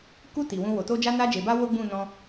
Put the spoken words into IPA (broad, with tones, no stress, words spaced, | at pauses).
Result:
ku˧ ti˨wũ˧ wo˨to˧ d͡ʒa˧na˧d͡ʒe˨ba˧ wo˦ɡ͡bũ˦˨nɔ̃˧